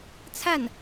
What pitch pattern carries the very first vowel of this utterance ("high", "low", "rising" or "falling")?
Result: falling